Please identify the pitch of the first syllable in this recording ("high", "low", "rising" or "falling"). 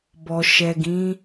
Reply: low